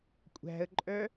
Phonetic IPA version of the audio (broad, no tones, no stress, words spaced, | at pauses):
kʷʼæ̤ə̯ǃʼœ